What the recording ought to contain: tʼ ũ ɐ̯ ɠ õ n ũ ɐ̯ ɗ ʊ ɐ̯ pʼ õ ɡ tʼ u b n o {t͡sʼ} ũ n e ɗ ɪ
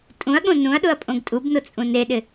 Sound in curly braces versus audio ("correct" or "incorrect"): correct